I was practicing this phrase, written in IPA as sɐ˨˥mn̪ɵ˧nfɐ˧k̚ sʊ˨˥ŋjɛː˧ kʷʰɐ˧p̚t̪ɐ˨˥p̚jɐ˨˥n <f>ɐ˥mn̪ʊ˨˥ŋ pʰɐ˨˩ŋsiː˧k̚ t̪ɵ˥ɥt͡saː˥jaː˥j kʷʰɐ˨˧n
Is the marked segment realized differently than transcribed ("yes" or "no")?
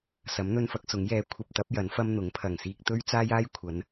no